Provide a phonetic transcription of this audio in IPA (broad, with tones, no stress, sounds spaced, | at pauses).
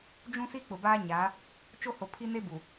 d͡ʒ ũ˦ s i˦ k͡p ʊ˨ b aː˦ ɲ a˨˦ | t͡ʃ o˦ h o˨ pʰ i˦ n e˦ b u˨